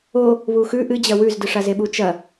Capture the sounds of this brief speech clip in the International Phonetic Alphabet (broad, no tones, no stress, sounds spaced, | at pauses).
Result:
o | β u x ʉ ʔ ɨ d͡ʑ ɐ w ʉ z d ɨ ʂ a z e ɓ u t͡ʃ ɐ